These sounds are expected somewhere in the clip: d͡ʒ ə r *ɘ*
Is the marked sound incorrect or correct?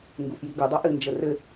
correct